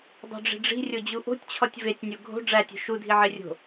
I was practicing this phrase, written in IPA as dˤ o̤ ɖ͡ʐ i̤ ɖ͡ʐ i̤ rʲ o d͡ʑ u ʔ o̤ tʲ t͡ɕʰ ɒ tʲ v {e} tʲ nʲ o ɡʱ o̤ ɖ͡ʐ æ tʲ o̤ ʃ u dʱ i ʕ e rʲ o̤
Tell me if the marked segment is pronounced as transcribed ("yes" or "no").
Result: yes